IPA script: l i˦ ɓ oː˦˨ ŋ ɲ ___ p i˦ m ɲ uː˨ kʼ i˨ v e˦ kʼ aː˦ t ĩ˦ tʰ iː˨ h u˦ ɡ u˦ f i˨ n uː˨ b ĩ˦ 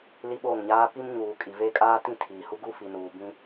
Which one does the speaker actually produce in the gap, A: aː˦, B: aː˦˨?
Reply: A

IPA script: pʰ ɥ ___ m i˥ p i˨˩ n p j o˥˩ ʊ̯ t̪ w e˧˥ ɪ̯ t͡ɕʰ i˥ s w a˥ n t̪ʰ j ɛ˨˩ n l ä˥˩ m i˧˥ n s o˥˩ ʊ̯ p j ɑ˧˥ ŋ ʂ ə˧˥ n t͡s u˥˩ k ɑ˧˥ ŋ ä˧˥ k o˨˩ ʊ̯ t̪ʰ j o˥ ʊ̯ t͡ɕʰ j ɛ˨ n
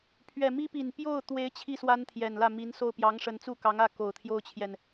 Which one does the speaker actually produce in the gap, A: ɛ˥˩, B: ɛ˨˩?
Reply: B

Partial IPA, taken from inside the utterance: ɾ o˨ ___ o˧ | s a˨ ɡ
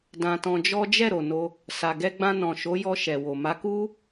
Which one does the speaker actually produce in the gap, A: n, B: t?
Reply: A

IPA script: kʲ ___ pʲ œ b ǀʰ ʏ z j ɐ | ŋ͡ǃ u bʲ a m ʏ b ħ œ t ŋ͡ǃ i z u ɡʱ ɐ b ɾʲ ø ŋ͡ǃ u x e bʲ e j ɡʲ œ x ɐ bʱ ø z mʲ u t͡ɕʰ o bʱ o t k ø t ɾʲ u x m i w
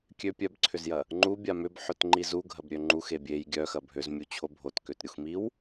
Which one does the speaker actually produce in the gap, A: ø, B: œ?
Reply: A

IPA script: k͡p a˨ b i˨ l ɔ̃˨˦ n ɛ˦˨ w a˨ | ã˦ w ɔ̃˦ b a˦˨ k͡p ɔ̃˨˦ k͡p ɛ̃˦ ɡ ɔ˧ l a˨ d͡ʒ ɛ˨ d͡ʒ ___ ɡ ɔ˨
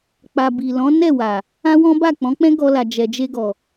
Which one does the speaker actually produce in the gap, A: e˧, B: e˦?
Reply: A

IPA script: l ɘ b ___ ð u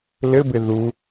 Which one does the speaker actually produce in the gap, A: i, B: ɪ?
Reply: B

